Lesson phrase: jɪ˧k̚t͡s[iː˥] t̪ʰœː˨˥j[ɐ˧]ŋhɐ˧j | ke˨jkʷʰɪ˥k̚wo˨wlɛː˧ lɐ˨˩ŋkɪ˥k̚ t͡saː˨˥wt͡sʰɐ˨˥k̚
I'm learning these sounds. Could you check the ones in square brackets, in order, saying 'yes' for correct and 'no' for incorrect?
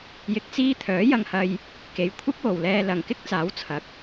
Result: yes, yes

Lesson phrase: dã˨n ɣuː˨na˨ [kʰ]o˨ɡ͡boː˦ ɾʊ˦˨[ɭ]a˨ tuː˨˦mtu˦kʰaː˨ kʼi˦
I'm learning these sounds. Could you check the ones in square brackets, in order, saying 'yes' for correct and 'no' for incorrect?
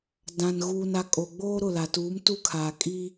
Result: no, no

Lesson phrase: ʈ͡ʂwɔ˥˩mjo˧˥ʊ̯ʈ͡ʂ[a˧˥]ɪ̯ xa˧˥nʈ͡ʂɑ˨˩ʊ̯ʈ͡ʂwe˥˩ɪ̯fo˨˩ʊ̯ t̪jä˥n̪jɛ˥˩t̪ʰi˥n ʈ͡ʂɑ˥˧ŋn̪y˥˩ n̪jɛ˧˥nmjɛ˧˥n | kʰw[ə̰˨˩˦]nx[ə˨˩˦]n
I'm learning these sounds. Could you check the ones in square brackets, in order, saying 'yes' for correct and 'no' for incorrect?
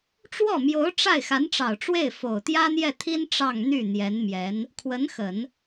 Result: no, no, yes

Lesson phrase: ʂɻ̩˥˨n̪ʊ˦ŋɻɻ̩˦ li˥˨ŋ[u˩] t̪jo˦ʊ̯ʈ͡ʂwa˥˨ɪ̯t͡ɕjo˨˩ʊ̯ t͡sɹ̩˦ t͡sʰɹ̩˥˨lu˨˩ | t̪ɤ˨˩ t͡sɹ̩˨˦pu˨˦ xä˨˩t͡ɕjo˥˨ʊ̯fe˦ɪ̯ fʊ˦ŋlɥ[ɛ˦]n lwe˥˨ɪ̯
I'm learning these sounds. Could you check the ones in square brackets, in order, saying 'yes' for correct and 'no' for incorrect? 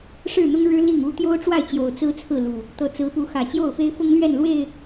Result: no, no

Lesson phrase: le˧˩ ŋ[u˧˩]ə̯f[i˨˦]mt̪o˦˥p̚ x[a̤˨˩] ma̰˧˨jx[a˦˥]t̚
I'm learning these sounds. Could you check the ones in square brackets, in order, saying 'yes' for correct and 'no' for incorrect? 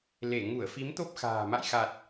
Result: yes, yes, no, no

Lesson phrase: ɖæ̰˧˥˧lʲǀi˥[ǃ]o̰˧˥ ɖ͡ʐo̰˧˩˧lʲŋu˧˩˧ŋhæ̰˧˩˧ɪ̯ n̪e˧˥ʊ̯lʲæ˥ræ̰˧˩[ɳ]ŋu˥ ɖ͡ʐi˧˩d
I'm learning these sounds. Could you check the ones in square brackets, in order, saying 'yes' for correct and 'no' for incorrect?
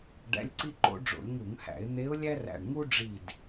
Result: yes, yes

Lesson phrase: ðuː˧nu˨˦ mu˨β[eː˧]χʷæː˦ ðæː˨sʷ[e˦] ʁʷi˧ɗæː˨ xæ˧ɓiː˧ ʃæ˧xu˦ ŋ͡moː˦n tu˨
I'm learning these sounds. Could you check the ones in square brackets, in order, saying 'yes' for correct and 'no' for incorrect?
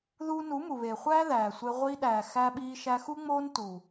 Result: no, no

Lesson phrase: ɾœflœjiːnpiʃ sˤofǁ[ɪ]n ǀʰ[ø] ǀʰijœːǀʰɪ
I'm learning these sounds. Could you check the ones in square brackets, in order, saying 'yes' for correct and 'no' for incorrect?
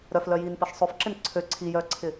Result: yes, yes

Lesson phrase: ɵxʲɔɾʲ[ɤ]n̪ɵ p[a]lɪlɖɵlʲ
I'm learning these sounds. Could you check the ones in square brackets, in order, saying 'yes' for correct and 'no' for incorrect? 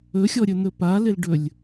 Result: no, yes

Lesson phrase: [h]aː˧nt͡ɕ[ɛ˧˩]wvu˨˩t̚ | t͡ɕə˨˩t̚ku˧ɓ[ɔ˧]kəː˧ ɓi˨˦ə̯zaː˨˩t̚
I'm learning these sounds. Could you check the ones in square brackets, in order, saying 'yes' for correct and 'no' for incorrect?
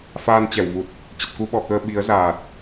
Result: no, yes, no

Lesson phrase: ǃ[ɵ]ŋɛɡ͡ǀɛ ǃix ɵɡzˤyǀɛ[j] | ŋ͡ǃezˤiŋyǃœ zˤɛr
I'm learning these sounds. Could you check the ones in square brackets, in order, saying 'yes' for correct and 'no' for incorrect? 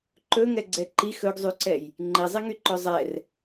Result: yes, yes

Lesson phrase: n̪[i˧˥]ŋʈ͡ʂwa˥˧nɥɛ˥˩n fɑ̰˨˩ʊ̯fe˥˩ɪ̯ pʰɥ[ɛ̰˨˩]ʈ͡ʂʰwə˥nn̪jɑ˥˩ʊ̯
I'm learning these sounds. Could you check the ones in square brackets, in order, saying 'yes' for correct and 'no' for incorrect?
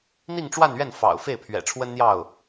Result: no, yes

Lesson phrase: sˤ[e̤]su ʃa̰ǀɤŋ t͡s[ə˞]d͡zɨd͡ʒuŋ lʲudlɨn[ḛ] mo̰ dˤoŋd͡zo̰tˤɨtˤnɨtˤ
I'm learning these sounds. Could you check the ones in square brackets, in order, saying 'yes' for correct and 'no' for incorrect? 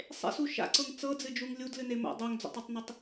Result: no, no, no

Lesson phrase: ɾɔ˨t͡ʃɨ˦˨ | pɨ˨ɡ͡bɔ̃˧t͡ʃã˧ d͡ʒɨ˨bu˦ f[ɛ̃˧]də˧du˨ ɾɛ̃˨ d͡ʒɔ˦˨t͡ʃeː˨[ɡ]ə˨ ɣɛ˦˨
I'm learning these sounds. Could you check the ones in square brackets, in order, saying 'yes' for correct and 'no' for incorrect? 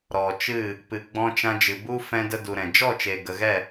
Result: yes, yes

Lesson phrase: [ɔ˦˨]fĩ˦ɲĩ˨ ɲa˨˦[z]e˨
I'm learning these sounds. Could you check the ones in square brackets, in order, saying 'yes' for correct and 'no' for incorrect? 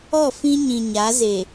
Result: yes, yes

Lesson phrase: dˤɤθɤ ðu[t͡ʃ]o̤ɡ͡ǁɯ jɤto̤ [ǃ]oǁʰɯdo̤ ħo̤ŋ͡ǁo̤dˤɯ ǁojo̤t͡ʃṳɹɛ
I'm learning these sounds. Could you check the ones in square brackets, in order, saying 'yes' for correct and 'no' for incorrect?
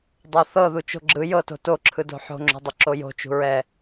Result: yes, no

